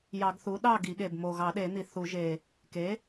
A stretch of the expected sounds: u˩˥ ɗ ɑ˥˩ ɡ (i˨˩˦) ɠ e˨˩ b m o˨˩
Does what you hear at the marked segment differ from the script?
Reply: no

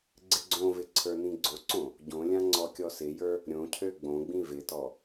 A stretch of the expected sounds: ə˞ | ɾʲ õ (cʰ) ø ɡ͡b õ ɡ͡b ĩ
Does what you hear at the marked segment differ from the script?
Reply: no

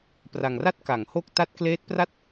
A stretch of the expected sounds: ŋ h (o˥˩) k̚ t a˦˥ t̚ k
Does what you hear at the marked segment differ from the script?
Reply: no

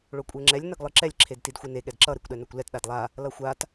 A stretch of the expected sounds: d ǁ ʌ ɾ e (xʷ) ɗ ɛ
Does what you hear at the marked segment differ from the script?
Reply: yes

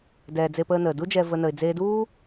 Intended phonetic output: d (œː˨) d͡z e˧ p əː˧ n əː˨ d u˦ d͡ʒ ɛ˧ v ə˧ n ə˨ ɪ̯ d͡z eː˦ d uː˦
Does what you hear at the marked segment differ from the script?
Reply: yes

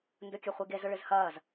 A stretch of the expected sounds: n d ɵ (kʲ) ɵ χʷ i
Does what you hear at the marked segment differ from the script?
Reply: no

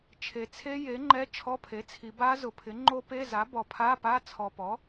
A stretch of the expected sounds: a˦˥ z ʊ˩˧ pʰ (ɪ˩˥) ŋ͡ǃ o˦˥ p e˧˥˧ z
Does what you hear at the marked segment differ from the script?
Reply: no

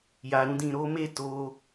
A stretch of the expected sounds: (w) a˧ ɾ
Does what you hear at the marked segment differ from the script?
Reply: yes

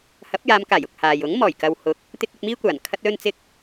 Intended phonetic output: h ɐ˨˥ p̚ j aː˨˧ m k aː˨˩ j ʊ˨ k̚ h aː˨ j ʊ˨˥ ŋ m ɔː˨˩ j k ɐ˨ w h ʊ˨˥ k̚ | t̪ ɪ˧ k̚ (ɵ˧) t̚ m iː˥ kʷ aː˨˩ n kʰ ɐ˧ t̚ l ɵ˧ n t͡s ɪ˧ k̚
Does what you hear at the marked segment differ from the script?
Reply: no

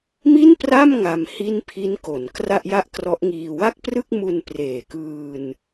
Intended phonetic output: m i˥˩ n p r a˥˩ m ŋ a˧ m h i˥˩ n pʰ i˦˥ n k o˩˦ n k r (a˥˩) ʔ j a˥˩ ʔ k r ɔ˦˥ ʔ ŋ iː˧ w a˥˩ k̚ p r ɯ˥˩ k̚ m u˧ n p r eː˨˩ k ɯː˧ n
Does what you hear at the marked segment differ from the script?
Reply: no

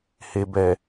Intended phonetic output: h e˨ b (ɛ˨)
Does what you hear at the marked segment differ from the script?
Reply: no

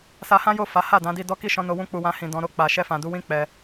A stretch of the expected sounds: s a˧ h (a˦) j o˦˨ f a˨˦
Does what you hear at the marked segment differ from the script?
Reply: yes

